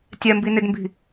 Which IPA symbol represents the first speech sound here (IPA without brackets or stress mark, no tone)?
tʲ